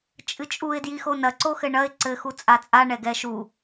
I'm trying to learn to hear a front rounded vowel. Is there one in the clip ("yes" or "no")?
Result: no